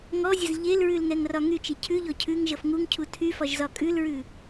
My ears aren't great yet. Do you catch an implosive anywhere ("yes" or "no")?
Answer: no